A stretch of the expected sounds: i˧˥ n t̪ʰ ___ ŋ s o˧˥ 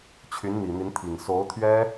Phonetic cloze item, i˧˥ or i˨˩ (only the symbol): i˨˩